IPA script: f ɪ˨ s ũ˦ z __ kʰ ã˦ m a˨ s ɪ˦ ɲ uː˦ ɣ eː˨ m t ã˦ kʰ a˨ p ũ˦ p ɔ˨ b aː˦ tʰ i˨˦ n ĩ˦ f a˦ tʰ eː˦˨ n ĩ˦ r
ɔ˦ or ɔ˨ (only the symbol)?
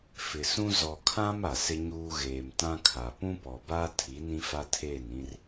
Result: ɔ˨